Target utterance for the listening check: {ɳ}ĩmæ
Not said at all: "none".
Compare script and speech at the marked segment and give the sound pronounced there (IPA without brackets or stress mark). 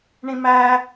ɳ